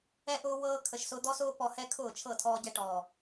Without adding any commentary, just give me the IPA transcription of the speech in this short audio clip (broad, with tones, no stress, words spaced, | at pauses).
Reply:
ɛ˧ʔʊː˧ wɤː˧ kʰə˨ʃsʊ˧d̪ɔ˦sʊː˦ pɔ˨hɛ˧ kʰʊː˦˨t͡ʃʰɤ˦˨tʰɔː˧ɟɛ˧ ʈɔː˨